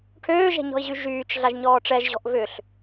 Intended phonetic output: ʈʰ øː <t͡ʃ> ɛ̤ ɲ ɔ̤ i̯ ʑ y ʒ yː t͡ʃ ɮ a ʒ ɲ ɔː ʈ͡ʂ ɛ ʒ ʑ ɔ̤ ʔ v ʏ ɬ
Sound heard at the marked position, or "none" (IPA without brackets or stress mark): ʒ